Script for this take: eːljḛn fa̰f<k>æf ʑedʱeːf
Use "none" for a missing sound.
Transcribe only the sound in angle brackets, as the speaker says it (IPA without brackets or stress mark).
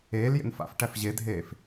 ʈ